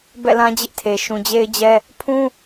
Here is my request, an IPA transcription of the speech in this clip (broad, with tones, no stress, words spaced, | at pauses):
bɛ̰˦˨lã˦d͡ʑɪ˦ʔtʰe˨ ʃũ˨d͡ʑe˦ɪ̯d͡ʑɛ˦ | pʰũ˦